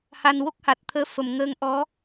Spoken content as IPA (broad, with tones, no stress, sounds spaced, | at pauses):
h a˨˩ n w o˦˥ k̚ h a˨˩ t̚ t̪ʰ əː˧˥ f ə˨˩ m ŋ əː˧ ŋ ʔ ɔ˧˥